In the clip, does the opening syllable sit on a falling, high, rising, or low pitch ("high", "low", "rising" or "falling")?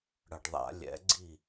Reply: low